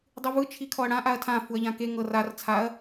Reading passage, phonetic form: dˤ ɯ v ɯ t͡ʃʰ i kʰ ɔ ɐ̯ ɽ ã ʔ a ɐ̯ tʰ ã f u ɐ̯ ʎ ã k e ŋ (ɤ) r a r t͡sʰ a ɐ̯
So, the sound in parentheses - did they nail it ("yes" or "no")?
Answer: yes